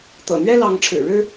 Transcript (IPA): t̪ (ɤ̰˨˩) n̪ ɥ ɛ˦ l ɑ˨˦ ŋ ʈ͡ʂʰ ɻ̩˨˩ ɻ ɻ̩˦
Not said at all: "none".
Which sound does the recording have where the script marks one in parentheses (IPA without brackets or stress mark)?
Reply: ɤ̰˨˩